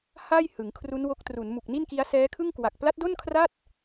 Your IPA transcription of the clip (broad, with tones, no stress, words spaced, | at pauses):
ha˥˩j hɯ˩˦ŋkʰru˦˥nwo˦˥k̚ tru˩˦nmu˨˩k̚ni˥˩nki˦˥a̯ sɛː˦˥kʰɯ˥˩ŋkwa˨˩k̚ pla˦˥t̚do˥˩nkʰra˥˩t̚